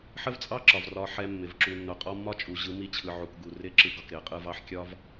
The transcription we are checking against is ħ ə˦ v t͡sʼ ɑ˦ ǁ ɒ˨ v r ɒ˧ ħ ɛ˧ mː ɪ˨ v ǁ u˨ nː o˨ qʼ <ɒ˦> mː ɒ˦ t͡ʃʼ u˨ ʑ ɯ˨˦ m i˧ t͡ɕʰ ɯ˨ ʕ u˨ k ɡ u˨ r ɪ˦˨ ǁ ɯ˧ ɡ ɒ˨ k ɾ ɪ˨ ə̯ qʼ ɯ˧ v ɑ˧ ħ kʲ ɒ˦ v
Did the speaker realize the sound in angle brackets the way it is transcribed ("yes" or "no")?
yes